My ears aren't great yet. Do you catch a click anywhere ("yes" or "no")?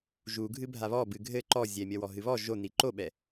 yes